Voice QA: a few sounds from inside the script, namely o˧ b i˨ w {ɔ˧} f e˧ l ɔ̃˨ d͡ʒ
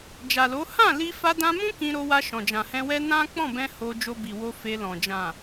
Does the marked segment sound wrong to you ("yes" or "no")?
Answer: yes